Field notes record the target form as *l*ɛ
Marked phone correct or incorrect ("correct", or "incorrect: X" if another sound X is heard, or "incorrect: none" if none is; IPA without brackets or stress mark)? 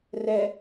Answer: incorrect: r